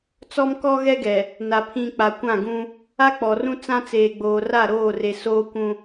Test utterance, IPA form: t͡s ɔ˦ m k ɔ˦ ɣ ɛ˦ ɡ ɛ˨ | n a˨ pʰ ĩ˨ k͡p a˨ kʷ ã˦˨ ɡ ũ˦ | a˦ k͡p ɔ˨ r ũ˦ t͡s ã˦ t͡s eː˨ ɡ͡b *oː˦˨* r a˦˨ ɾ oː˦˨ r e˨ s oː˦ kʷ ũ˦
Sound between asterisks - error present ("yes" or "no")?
yes